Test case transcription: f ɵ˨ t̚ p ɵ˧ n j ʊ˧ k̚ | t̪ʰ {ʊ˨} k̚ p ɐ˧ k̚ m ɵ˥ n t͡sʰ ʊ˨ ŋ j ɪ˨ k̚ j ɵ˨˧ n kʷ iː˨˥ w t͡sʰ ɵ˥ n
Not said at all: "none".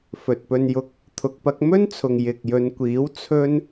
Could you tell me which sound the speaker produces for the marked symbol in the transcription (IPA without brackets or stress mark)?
ʊ˨